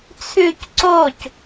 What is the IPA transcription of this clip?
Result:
t͡sʰʉc ǀoc

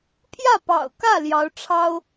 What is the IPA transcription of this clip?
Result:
pʰjä˥˩pɑ̰˨˩ʊ̯kä˥˩ ljɑ˧˥ʊ̯ʈ͡ʂʰɑ˥ʊ̯

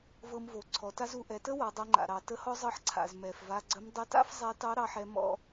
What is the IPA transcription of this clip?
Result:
vɤ˧mvo˩˧ ǀʰɔ˩˧ta˥z u˩˧ʔɛ˩˧tə˥ wa˩˧dˤɤ˧ŋ͡ǃa̰˩ɾɑ˩˧ tə˧˥hɔ˥zˤɤ˧˥ħ ǀʰa̰˩z mɛ˩fva˧ɡ͡ǀə˧˥m dˤə˧˥ta̰˥f zˤɛ˧˥tɑ˧˥ɾɑ˩˧ħɛ˧ mɔ̰˧

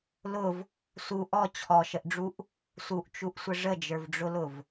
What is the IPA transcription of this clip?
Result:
lʊv | su ʔɔ t͡ɕʰɔʃəʔɖ͡ʐuʔ | suʔt͡ʃuʔsʷə ʐəd͡ʒə˞vɖ͡ʐʊlʊv

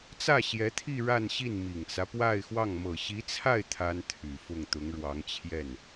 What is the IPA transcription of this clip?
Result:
t͡sä˥˩ɕjɛ˧˥t̪ʰi˥˧ ɻa˥˧nɕi˥˩n mi˨˩ŋt͡sä˦pwa˥˧ɪ̯xwɑ˥˩ŋ mɤ˨˩ɕi˧˥t͡sʰa˥˩ɪ̯ t̪ʰa˥nt̪ʰy˨˩fʊ˥˩ŋ t̪ʊ˧˥ŋɻwɑ˧˥ŋt͡ɕʰjɛ˥˩n

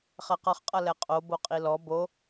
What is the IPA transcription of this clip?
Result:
χɛqʌχqʼʌ lɛqʼo boqʼilɔ bo

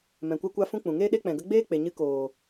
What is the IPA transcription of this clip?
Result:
mɛ̃˨kʷɛ˧kʷa˧fũ˧ k͡pũ˨ŋeː˦ɗe˦ k͡pɛ̃˨ɡə˧ɡ͡beː˦ k͡pe˨ɲɨ˧ koː˨

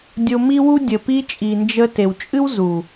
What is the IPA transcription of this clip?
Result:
dʲo˧mi˦wu˦ dʲə˨pi˧t͡ʃʼi˨ nd͡ʒə˧ te˨w t͡ʃʼɨ˦wzu˨

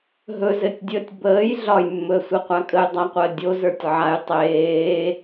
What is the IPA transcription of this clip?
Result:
ɦɵzɘtʲdʲəːtʲ bəːj ɮɒjmːɵə̯sʷɘqʷa kʼəjdˤaqʷəː dʲozə˞tʲ ʕaj tˤeː

